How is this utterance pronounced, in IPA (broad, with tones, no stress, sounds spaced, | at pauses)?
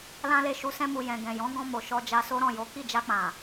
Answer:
l ã˦ l e˦˨ ʃ u˧ s ɛ̃˧ m u˨ j ɛ̃˨ ɡ ɛ̃˨ j ɔ̃˨˦ ɡ ɔ̃˧ m o˨ ʃ ɔ˧ d͡ʒ a˧ s o˦ ɾ ɔ̃˦˨ j o˨˦ k i˦˨ d͡ʒ a˧ k͡p ã˨